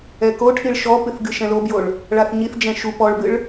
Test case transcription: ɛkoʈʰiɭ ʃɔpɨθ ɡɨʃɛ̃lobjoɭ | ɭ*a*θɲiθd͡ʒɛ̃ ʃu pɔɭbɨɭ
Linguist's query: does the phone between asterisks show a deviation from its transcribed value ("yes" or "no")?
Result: no